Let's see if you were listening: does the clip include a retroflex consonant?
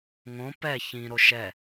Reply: no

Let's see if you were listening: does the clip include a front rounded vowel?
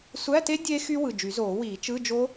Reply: yes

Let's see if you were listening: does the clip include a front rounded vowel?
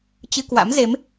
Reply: no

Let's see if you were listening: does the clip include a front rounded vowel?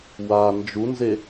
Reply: no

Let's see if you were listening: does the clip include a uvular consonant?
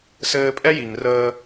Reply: no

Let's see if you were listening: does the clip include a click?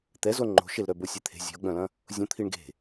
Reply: yes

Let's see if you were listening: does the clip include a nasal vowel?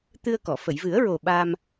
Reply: no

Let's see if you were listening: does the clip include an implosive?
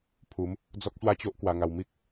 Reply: no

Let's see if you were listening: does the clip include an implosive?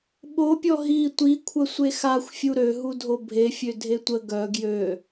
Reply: yes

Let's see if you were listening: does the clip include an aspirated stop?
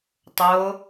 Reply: no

